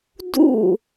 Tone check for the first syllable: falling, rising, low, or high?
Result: falling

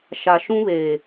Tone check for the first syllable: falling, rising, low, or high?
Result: low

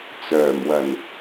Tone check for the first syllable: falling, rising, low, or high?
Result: low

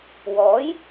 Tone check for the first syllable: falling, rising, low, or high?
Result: rising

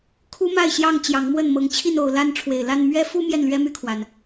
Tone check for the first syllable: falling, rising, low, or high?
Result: high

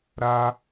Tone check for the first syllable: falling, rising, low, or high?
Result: high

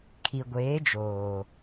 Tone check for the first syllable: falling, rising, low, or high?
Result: low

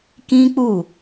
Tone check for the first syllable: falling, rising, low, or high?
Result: high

